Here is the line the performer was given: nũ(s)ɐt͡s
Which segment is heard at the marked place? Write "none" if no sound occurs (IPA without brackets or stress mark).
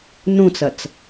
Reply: t͡s